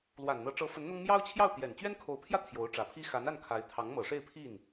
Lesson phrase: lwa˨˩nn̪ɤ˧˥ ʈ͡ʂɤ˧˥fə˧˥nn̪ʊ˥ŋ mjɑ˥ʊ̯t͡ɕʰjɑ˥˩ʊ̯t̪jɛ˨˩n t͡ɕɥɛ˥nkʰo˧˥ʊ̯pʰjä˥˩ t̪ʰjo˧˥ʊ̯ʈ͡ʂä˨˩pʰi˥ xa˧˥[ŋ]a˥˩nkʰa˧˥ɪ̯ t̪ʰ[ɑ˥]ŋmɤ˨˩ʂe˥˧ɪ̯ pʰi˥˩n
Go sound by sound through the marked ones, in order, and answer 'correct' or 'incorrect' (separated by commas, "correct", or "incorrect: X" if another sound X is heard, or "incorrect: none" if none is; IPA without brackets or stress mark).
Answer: incorrect: n, incorrect: ɑ˧˥